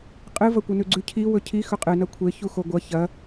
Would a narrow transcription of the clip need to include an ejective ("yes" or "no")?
yes